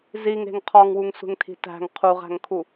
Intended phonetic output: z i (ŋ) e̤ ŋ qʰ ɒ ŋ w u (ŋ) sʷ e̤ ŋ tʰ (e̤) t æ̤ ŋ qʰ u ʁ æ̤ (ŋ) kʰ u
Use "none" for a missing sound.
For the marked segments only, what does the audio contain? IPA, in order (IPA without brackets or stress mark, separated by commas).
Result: ŋ, ŋ, i̤, ŋ